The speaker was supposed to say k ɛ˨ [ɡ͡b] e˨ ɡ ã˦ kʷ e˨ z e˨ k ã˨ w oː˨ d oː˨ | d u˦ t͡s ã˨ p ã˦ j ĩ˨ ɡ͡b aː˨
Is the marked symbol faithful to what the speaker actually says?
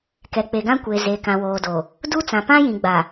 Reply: no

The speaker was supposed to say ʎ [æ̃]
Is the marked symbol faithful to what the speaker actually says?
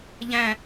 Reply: yes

